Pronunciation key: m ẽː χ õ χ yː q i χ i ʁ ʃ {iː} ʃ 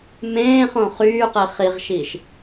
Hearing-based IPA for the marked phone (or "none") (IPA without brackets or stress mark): iː